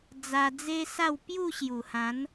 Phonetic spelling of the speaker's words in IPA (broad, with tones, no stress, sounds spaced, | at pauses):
d͡z a˧ d͡z e˦ s a˥˧ w p j u˥˧ ɕ j u˨˩ h ã˨˦ n